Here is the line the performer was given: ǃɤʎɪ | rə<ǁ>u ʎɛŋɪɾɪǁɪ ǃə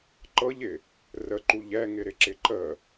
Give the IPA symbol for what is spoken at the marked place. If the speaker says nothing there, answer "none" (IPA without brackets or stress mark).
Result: ǃ